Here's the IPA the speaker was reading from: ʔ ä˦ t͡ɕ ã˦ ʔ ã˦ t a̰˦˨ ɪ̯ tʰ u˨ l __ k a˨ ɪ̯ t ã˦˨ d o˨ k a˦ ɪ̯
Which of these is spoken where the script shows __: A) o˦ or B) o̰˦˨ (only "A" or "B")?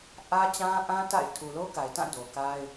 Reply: A